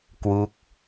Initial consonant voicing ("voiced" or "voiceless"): voiceless